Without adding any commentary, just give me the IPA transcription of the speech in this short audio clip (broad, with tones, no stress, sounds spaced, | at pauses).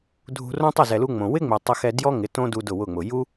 dʱ ṳ˧ r õ˦ tˤ ɪ˦˨ z ɛ˨ l u˧ ŋ͡m õ˨ w ɪ˦ ŋ͡m ɪ˨ tˤ ɪ˧ x ɛ˧ d j ɔ˦ ŋ ɪ˨˦ t õ˦ d u˧ d ʊ˦˨ w ʊ˦˨ ŋ͡m ʊ˨ j u˦